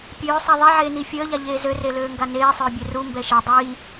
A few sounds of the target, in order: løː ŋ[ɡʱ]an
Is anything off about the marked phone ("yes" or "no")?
yes